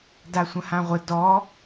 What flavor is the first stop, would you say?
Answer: plain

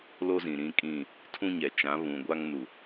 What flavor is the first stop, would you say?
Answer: ejective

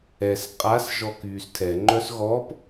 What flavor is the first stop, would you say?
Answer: ejective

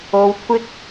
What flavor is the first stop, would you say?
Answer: aspirated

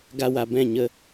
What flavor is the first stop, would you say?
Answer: plain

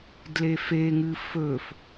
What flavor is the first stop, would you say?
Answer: plain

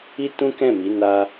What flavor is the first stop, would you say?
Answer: plain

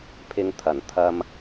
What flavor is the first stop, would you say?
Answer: aspirated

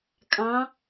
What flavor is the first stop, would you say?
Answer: ejective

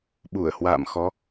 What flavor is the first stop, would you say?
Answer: implosive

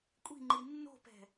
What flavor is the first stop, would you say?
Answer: ejective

